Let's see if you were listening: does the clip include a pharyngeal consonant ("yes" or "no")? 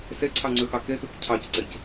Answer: no